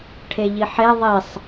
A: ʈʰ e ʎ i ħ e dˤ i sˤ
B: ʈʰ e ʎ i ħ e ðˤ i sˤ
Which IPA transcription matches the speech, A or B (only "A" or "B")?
B